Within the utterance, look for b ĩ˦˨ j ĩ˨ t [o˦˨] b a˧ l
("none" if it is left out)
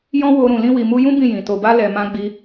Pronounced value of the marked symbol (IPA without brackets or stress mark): o˨